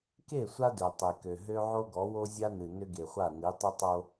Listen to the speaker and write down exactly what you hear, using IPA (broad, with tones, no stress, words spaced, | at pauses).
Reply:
ke˦˨sʷa˦dø˨ tˤe˨kø˨ɦø˦ ʕo˦ɡɔ˨˦wo˦ zʲa˦nɨ˨ nʏ˦ɡe˨χʷa˦˨ ni˨˦tˤʏ˦tˤo˦